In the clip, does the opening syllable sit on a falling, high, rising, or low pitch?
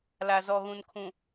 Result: low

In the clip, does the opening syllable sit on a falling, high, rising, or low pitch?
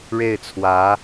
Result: falling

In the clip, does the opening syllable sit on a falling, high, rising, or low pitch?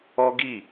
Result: high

